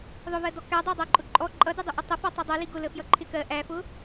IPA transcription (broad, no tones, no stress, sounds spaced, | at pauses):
ðˤ ʊ v ɜ d ɔ k æ dˤ æ dˤ æ ǃʼ ʊ ǃʼ ɔ ǃʼ ʌ d ʊ dˤ ʊ ʔ ʊ tˤ ə f ɔ tˤ ʌ dˤ ɛ l i ɡ ʊ l ə f j ʌ ǃʰ ɪ k ɜ ʔ æ f ʊ